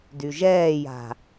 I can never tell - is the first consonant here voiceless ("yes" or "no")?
no